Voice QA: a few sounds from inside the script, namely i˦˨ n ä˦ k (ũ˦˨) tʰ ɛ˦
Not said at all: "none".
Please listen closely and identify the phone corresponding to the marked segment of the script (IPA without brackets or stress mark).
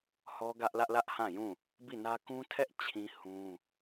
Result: ũ˦